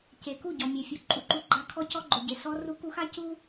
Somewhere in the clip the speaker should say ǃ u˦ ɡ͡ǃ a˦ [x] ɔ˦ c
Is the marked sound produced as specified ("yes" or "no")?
no